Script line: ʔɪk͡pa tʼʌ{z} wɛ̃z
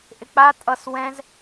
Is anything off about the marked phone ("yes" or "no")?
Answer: yes